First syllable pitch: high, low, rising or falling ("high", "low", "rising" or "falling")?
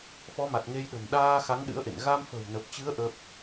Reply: rising